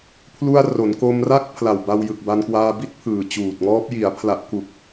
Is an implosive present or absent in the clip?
absent